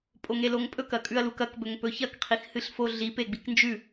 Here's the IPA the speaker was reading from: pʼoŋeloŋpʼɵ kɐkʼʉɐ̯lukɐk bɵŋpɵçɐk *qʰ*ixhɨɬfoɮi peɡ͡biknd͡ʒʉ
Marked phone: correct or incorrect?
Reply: correct